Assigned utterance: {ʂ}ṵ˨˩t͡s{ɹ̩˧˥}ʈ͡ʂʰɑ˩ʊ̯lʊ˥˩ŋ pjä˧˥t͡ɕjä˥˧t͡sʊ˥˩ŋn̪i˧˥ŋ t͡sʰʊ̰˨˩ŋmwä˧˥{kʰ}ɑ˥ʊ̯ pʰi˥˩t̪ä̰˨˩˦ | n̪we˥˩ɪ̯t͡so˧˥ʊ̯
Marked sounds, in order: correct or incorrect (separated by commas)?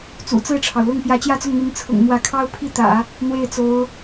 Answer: incorrect, incorrect, correct